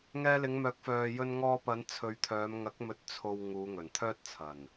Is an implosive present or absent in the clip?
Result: absent